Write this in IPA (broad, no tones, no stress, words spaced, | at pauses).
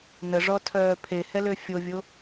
nəʐɔtʰœː pʰehɛlø fʲovʲo